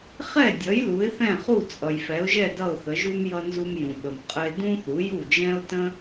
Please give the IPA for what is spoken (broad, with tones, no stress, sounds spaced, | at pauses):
χ ɛ˥˩ dʲ ʌ˩˥ j l u˩˥ ɪ̯ θ ɛ̃˥˩ χ u˥˩ t͡sʼ ʌ˩ j f ɛ˩˥ ʊ̯ ʒ ɛ˥˩ d ʌ˥˩ ʊ̯ θ ə˩˥ ʒ u˥ m j ʌ˧ n z u˧ m j ũ˩ ɓ ə˩ m qʼ ə˧ ɪ̯ d ũ˥ θ u˩˥ j u˥˩ d͡ʒ ɛ̃˥ ʊ̯ t ə̃˥